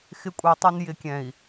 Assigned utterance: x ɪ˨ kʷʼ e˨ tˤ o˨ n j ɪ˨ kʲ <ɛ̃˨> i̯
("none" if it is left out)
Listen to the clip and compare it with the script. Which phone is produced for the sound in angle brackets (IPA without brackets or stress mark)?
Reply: ɛ̃˨